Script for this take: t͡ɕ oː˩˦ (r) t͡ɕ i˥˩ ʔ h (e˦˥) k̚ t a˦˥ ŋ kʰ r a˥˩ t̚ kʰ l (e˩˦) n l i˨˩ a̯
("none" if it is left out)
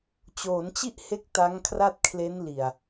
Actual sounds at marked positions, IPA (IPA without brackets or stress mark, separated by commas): n, e˦˥, e˦˥